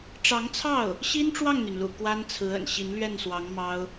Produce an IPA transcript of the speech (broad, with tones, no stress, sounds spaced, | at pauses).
ʈ͡ʂ ɑ˧˥ ŋ t͡sʰ ɑ˥˩ ʊ̯ | ɕ i˥ n ʈ͡ʂ w ɑ˥˩ ŋ n̪ y˩ n l ṵ˨˩ k w a˥ n t͡sʰ ɹ̩˧˥ ə̰˨˩ n ɕ i˧˥ n l ɥ ɛ˥˩ n s w ɑ˧˥ ŋ m ɑ˥ ʊ̯